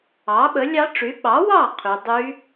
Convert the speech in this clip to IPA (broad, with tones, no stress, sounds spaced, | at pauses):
ɑ˨˥ ɓ ə˨˥ lʲ ɑ˦˥ ʈ͡ʂ y˨˥ ɓ ɑ˨˥ w ɑ˥˨ qʰ y˦˥ dˤ y˦˥